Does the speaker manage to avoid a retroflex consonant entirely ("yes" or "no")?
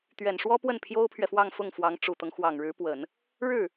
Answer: no